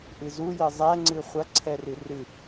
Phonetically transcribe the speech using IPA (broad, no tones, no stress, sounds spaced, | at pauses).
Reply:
ʔ ɨ z u j ɘ zˤ ɛ ŋ͡ǀ ɨ χʷ ɐ ǀʰ ɛ r ɨ r ɨ